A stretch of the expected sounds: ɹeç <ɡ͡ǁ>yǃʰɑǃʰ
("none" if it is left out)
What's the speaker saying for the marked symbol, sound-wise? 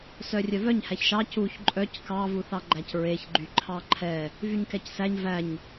ɡ͡ǃ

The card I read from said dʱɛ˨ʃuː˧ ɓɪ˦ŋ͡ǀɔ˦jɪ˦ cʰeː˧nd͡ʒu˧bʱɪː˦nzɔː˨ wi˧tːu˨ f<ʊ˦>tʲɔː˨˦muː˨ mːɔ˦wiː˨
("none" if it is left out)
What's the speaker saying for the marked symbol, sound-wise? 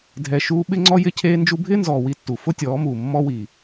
ʊ˦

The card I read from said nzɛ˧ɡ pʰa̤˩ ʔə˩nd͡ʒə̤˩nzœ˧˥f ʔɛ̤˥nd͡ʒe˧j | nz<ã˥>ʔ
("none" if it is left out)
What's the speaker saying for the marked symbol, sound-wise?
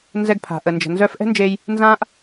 ã˥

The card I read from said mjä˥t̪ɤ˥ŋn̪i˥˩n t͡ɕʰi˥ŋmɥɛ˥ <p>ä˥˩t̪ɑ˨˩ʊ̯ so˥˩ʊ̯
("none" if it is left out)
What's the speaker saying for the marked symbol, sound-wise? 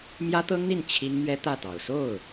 t̪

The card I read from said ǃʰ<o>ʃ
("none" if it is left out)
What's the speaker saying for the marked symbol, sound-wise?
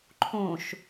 õ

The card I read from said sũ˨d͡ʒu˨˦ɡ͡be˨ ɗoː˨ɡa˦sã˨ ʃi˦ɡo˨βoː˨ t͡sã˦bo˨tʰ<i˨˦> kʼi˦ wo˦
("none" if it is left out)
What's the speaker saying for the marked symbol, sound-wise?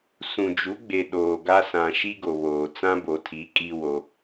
i˨˦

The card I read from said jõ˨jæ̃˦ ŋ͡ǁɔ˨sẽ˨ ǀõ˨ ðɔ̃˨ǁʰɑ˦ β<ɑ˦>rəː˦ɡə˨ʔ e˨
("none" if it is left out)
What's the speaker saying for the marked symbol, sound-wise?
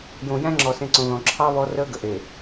ɔ˦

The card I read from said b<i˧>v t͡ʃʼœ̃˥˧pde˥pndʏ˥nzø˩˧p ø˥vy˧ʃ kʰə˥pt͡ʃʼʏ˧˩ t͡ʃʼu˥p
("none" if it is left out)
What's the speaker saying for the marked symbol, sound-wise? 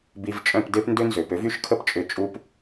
i˧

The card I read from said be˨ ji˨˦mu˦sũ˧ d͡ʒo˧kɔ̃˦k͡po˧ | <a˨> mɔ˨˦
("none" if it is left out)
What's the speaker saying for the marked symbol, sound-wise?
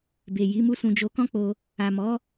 a˨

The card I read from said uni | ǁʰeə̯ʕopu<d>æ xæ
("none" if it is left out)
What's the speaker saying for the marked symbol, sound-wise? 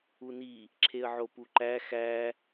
ǃ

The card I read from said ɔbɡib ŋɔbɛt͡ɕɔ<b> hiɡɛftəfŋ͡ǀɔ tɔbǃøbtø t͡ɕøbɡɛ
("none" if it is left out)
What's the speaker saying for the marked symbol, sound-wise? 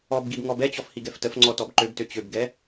f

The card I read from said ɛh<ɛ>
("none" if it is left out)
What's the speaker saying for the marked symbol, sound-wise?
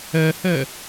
ɛ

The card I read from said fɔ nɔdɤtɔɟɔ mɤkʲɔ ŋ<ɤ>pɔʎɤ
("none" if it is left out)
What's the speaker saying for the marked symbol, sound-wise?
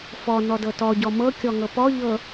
ɤ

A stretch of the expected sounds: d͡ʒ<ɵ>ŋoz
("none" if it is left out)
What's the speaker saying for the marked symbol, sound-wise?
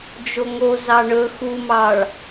o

